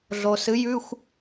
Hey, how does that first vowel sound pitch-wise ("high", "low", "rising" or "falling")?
low